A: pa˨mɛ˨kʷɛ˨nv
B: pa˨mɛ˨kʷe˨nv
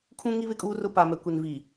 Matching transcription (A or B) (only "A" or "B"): B